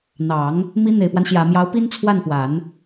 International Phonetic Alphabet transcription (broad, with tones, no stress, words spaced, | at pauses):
n̪ɑ˨˩˦ŋ | mi˧˥ n̪e˨˩ɪ̯pwa˦n ɕjä˨˩mjɑ˧˥ʊ̯pi˥n t͡sʰwa˥˩npwa˨˩˦n